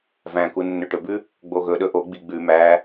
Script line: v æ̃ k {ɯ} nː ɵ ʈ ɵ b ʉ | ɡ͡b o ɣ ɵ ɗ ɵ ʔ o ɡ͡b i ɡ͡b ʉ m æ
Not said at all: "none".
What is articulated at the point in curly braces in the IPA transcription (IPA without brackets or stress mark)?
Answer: u